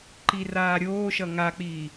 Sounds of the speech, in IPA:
ǃiraːɾʲoːʃʌ ŋak͡piː

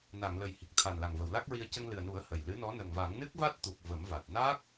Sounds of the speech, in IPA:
na˨˩˨ŋlə˨˩j hi˨˩k̚t̪ʰa˨˩nla˨˩ŋ və˨˩˨wla˦˥k̚ɹi˧ə̯ cə˧ŋlɨ˨˩ə̯nu˨˩˦ə̯ hə˨˩jlɨ˧˥nɔ˧˥ nə˨˩ŋva˨˩˦ŋ nɨ˦˥k̚va˦˥t̚t̪u˨˩k̚ və˨˩˦mva˨˩t̚ na˦˥k̚

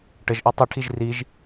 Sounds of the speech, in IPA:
ʈəʒʔɔ tˤəʈʰiʒ riʒ

